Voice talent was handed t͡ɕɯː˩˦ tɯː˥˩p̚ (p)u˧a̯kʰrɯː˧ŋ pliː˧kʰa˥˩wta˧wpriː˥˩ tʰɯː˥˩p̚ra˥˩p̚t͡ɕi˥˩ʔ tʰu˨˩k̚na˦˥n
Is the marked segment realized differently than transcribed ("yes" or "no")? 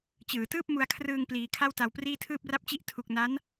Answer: yes